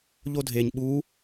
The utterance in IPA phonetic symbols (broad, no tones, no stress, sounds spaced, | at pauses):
ʎ o dʱ e ɲ ɓ u